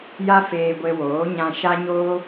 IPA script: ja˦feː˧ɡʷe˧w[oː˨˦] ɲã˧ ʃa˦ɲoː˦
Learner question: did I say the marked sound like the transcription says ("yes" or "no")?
yes